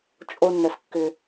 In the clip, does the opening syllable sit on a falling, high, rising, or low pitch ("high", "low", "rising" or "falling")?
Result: high